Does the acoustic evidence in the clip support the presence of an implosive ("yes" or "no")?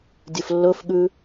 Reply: yes